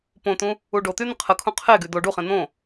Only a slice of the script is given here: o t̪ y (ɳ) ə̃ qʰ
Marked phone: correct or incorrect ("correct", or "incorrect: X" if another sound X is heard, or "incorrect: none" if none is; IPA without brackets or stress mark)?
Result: incorrect: n̪